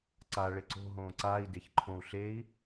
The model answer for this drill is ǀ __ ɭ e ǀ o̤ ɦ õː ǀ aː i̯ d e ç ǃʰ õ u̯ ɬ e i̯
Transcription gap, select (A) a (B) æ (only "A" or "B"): A